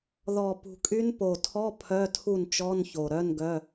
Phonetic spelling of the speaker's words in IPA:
ð ɔ˨˩ p ṳ˨˩ kʼ y˧˥ n p o˨˩ tʰ ɔ˧˥˧ pʰ œ˧˥˧ tʰ u˥˩ n t͡ʃ ɔ˧˥˧ n ç o˨˩ ɾ œ˧˥˧ n ɡ œ˧˥˧

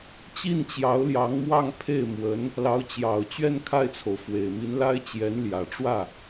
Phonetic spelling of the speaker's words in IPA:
t͡ɕ i˥˩ n t͡ɕ j ɑ˧˥ ʊ̯ l j ɑ˧˥ ŋ m w ɑ˥˧ ŋ pʰ e˥˩ ɪ̯ m w ə˧˥ n | l ɑ˧˥ ʊ̯ t͡ɕ j ɑ˨˩ ʊ̯ t͡ɕ ɥ ɛ˥˧ n kʰ a˥˩ ɪ̯ t͡sʰ o˩ ʊ̯ f w e˨˩ ɪ̯ m i˧˥ n l a˥ ɪ̯ t͡ɕ j ɛ˧˥ n l j ä˨˩ ʈ͡ʂ w ä˥˩

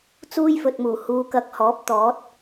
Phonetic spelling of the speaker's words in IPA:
t͡s uː˥ j f ɵ˨ t̚ m uː˨˩ h uː˨˧ k ɐ˧ k̚ h ɔː˨˥ p̚ t̪ ɔː˨˥ t̚

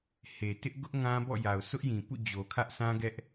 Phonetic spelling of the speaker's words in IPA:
h e˨ t ɪ˦ ʔ ɡ ʊ˦ ʔ ŋ ã˦ b ɔ̰˦˨ j a˨ ʊ̯ sʰ ʊ˦ ʔ j ĩ˨ p ṵ˦˨ d͡ʑ o˨ kʰ ä˦ ʔ s ã˦ ɡ ɛ˦ ʔ

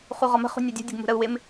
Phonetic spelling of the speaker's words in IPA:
χ u ʁ ɒ m ə̤ χ ṳ nʲ ʌ dʲ ṳ dʲ ə ɡ m ṳ ɾ ə u̯ w ɪ m

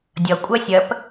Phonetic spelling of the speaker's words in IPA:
dʲ ʌ kʷʼ ɜ sʲ ɜ p

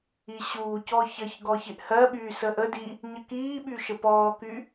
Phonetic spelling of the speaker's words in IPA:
i ɕ uː c ɔ ç ə ç ɡ ɔ ç ɪ ʔ h ɜ ɓ yː s ə ʔ ə d i | ɲ ə k iː ɓ y ʃ ə p ɔː k y

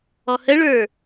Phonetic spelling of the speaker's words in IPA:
ɔ h ə ɭ ə˞

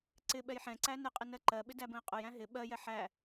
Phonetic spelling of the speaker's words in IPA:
ǀ ɪ ɓ ɛ j ħ ɛ̃ ǀ æ n ɪ qʼ ɪ n ɜ ǃ ɜ ɓ ɪ d æ b ə̃ ɪ̯ qʼ ʊ j æ̃ ɦ ɪ ɓ ɜ j ɛ ħ æ

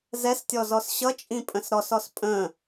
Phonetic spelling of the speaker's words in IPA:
z ɛ s tʲ ɔ z ɔ s ɕ ʌ t͡ʃʼ ĩ pʼ ə̃ s ɾ ɔ s ɔ s pʼ ə̃

